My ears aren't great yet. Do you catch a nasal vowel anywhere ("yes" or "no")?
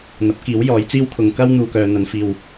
no